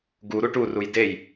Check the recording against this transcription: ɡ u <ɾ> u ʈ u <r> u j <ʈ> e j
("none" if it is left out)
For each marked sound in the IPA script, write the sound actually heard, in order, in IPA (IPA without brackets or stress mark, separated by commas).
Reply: ɾ, r, d